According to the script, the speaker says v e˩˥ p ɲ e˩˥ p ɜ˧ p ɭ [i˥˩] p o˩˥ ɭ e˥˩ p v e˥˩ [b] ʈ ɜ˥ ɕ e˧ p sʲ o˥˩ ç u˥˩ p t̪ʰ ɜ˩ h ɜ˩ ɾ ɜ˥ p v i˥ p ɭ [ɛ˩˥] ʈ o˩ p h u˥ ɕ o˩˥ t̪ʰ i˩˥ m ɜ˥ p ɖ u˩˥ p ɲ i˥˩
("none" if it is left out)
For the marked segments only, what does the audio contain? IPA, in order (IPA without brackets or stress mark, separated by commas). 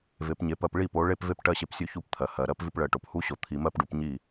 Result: i˥˩, p, ɜ˩˥